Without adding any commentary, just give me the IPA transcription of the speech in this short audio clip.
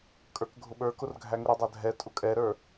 kʼ ə˞ k ɡʱ ʊ ɓ ə˞ k ʊ r ɡʱ æ ŋ ʊ ɾ ʊ dˤ æ dʱ ɛ tʼ ʊ kʼ ɛ ɾ ə˞

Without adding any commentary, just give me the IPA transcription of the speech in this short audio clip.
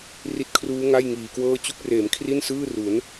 r i˦˥ t̚ kʰ r uː˦˥ ŋ a˥˩ j ŋ iː˨˩ k w ɤː˥˩ t͡ɕ u˦˥ k̚ r eː˩˦ m kʰ r i˥˩ n s ɯː˥˩ r u˩˦ n

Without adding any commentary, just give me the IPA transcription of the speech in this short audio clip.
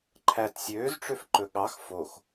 ǃʰ æ t sʲ øː z ʈ͡ʂ ø f ǃ ɵ ɠ ɑ x f o x

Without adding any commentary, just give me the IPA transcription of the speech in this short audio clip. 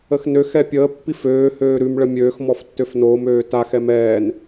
ə x n ø x ɛ pʲ əː pː i f øː h øː ɾ ʉ m ɭ ə mʲ øː x m ɔ f tː ø f n oː m øː t a x ɛ m ɛː n

